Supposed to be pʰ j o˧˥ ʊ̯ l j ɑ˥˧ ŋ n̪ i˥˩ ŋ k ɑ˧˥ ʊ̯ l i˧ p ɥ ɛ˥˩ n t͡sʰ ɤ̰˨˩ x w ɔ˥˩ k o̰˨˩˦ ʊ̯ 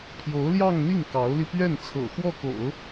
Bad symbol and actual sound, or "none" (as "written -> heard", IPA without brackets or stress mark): none